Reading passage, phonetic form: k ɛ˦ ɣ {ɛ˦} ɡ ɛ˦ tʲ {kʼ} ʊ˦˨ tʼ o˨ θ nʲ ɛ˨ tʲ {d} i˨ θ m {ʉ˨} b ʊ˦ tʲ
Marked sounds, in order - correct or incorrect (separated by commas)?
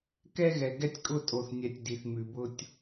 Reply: incorrect, correct, correct, correct